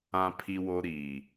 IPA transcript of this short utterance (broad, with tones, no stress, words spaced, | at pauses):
ã˦pʰi˦wo˦ ɾiː˨